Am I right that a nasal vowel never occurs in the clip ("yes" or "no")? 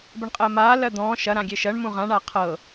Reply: no